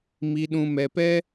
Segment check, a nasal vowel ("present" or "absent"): present